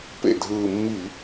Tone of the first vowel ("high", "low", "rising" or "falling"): low